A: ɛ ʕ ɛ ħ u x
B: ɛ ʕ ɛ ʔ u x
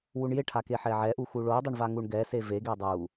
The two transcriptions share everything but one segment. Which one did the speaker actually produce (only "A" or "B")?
B